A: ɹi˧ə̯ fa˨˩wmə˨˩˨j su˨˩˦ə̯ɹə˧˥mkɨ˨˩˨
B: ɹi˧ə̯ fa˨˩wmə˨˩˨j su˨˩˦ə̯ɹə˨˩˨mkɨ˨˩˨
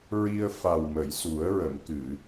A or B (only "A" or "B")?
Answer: B